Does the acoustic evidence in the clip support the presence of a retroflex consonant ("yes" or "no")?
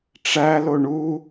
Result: yes